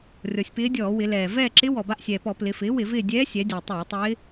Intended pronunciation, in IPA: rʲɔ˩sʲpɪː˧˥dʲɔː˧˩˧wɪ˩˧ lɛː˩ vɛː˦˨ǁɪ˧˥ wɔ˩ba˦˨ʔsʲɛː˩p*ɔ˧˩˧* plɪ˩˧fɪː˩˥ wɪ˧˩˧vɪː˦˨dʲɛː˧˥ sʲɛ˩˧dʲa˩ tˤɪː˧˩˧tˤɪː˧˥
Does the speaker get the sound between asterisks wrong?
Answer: no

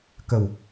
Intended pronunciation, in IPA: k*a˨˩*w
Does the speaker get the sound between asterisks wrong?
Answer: yes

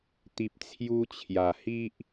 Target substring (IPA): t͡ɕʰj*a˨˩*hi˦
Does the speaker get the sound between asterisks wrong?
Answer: no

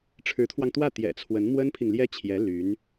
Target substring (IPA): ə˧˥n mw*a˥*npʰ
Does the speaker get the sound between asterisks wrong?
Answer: yes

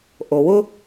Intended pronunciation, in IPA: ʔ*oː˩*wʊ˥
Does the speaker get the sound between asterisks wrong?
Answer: yes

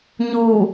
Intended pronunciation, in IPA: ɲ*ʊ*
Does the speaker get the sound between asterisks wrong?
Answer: yes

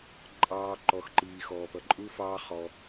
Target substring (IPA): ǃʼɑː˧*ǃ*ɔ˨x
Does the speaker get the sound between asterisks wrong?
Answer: no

